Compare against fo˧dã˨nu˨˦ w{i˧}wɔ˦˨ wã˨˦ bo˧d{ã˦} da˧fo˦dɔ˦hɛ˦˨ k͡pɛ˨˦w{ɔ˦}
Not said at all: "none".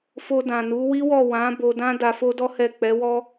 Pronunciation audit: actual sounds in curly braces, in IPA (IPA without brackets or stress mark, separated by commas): i˦, ã˦, ɔ˦